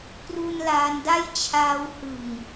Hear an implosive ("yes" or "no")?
no